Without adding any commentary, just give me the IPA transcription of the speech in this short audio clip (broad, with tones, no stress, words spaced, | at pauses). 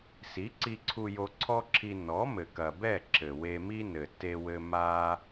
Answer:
si˨˦ǀi˧ǀʰu˧ jo˧ǀʰɔ˦ǁʰi˧ nɔ˨˦ mɘ˨kɐ˨bɛ˦˨ ǁɘ˨we˧mi˦ nɘ˨ te˧ wɘ˦ ma˦